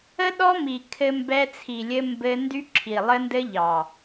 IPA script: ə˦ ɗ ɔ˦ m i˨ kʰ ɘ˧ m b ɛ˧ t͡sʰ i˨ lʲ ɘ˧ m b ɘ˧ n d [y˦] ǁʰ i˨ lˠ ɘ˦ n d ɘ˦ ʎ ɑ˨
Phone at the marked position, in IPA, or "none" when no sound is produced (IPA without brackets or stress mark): y˦